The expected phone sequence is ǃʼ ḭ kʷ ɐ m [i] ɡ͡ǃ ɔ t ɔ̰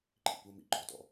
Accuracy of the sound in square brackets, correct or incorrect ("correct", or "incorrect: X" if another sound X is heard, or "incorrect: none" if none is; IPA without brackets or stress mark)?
incorrect: ḭ